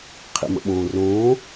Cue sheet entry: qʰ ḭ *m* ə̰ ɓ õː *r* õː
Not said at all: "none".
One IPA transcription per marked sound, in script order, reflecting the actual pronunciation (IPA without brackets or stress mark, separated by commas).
m, r